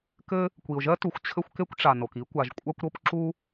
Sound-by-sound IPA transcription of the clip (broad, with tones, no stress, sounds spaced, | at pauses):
k ɘ˥ | kʷ i˩ ʊ̯ ʒ ɜ˥ t u˩ xʷ t͡ɕʰ ɘ˥ xʷ k e˥ kʷ ʈ͡ʂ a˩ n o˩ k i˥ kʷ a˩ ʒ kʷʼ a˥ kʷ ɾ o˥ p ǁ u˥